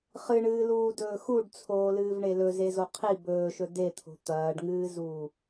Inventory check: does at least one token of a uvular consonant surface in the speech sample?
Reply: yes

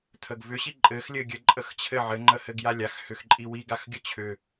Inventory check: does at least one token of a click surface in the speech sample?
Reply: yes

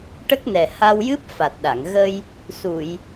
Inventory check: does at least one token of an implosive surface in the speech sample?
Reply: yes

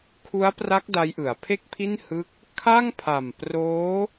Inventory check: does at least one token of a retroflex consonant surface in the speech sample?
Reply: no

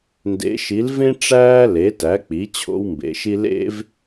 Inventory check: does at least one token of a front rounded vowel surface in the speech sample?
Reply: no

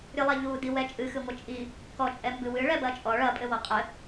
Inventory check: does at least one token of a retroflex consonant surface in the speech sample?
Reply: yes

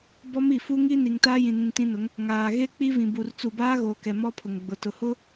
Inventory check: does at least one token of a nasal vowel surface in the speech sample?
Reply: yes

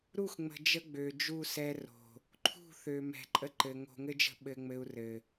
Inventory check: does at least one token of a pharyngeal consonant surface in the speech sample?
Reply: no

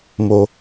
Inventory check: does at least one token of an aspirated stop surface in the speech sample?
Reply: no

